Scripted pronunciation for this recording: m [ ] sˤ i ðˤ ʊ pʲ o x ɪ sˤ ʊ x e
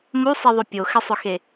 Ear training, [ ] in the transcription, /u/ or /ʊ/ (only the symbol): u